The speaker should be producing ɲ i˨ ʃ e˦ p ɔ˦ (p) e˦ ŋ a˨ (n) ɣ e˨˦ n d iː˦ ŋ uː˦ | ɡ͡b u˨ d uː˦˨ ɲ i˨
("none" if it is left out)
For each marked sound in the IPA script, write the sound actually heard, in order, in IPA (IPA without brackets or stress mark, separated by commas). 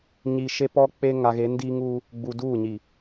k͡p, none